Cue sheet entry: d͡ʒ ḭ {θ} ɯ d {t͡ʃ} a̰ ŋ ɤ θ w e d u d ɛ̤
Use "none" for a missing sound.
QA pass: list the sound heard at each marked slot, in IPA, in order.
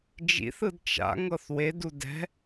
θ, t͡ʃ

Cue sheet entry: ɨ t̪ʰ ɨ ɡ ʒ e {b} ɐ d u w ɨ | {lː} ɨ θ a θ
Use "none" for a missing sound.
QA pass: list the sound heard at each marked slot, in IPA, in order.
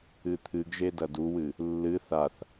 d, lː

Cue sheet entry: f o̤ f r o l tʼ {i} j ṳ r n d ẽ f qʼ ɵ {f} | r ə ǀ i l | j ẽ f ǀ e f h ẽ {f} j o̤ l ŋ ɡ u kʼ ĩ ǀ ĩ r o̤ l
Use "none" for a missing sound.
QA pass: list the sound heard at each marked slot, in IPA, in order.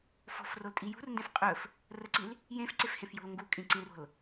i, f, f

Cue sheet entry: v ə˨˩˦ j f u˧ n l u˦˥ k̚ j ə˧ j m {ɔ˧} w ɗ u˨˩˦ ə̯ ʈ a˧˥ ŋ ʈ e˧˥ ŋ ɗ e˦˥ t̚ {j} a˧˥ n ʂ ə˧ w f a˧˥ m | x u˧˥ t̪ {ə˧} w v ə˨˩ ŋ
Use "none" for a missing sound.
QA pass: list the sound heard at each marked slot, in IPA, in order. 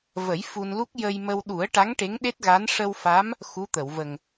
ə˧, ɣ, ə˨˩˨

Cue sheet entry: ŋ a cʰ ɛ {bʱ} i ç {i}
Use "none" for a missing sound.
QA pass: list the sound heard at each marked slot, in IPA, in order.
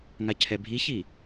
bʱ, i

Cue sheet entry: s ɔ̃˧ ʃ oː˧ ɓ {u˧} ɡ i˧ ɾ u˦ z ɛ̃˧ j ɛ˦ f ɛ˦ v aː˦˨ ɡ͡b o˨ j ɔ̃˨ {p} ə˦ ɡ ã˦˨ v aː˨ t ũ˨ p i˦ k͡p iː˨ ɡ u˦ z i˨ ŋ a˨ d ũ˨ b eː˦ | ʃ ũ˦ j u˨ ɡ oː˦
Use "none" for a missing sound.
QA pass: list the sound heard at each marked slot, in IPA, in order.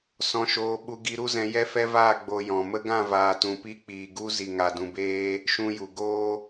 u˧, m

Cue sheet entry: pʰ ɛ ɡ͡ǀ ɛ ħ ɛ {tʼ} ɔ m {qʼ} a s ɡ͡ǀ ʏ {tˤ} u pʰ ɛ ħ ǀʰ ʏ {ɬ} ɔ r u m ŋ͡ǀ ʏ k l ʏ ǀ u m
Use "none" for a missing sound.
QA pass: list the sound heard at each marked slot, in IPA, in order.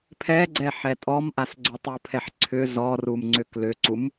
tʼ, ʔ, tˤ, z

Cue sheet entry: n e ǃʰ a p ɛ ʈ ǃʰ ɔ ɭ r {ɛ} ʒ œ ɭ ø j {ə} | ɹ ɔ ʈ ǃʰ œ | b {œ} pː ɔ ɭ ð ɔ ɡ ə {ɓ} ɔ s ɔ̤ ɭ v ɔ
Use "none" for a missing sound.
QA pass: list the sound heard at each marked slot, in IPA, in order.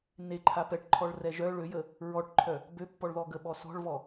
ɛ, ə, ø, ɓ

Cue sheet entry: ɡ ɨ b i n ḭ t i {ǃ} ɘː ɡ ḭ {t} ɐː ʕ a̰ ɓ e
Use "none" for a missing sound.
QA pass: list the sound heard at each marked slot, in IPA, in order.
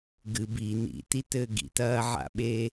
t, t

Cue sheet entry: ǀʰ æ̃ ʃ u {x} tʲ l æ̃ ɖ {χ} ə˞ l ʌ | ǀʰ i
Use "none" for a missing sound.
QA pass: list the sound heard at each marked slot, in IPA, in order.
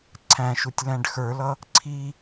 none, x

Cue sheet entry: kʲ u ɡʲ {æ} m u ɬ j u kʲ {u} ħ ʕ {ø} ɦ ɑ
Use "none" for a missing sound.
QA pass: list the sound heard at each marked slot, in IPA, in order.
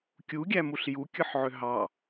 æ, ɯ, ø

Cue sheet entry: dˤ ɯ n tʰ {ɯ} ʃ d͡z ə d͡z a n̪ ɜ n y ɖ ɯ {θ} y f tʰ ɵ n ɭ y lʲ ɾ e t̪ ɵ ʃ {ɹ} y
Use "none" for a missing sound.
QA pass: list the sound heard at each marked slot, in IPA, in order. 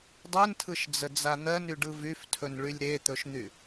ɯ, v, n̪

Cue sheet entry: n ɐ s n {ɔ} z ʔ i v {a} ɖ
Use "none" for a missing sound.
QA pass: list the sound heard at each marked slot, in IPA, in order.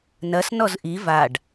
ɔ, a

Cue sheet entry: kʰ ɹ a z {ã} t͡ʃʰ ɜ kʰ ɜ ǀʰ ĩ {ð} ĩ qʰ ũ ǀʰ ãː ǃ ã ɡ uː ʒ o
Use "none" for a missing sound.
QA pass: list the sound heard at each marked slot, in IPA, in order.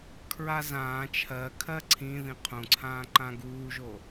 ãː, ð

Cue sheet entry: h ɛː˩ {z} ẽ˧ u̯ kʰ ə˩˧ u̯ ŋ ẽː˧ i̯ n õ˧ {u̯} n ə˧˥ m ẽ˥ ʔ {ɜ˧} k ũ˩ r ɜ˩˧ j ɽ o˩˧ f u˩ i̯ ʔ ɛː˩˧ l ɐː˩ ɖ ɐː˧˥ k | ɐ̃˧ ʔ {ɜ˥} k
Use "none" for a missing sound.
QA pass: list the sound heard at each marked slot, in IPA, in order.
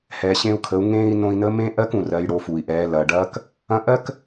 ɕ, i̯, ɜ˥, ɜ˥

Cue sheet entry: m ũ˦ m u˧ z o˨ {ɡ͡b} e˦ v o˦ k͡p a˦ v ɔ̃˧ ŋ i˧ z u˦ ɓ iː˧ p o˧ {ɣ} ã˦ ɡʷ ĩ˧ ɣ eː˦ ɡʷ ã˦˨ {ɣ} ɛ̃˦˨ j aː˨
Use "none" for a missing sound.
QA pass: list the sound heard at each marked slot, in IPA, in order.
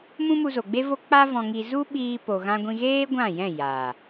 ɡ͡b, ɣ, j

